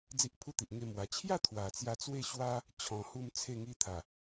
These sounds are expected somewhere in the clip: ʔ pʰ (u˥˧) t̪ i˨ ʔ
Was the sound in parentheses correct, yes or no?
yes